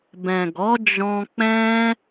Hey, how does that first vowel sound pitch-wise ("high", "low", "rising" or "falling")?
low